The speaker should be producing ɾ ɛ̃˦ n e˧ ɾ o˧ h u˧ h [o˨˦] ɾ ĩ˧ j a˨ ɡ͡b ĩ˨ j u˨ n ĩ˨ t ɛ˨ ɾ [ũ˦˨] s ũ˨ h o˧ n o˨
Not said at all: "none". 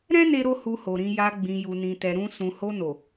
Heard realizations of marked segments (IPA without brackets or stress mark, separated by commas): o˨, ũ˧